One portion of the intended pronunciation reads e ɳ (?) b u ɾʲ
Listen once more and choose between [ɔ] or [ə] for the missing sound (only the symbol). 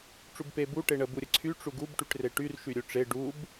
ə